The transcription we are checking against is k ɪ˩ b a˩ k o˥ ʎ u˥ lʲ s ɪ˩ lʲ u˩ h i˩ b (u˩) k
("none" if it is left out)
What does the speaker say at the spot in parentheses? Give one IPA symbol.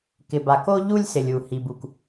u˩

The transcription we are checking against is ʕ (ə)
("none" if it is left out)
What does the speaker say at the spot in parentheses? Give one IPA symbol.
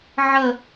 ə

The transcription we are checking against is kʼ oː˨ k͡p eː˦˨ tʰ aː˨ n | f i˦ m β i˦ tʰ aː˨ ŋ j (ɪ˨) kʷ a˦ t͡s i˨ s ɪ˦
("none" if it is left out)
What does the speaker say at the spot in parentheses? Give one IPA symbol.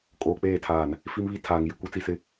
ɪ˨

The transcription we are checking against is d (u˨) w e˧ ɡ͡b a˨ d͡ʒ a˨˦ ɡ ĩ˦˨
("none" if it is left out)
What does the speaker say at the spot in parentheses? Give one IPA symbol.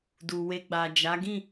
u˨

